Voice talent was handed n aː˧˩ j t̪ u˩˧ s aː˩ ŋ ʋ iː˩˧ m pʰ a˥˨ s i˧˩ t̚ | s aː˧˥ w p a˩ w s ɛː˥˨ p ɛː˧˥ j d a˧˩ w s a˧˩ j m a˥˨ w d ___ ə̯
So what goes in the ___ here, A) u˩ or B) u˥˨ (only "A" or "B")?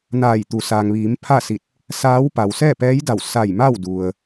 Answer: A